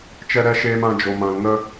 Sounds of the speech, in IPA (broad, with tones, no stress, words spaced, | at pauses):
t͡ʃɛ˦ɾɛ˦ʃeː˦m ã˦ d͡ʒo˧mã˧lŋə˦